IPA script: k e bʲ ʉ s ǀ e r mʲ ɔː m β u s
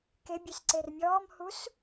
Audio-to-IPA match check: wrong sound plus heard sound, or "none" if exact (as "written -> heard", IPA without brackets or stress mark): β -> h